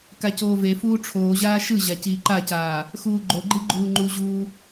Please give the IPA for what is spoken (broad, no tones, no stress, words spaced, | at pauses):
kacoːvefuː ʈ͡ʂʰoːʑaː ʃɯʑa ciːǃacaː | xuːɡ͡ǃoɡ͡ǃi ɡ͡ǃuːŋ͡ǃuʑuː